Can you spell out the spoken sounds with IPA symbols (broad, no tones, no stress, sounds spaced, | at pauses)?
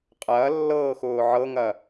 qʼ ɐː lː ɤː x ʊː ʕ ɤ ŋ ɐ